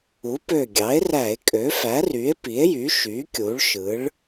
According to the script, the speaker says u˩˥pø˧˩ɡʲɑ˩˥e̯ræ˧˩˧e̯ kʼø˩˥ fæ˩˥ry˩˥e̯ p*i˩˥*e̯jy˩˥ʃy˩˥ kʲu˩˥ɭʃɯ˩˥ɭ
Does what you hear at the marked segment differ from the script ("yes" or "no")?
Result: no